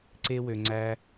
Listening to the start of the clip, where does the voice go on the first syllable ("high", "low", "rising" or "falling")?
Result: high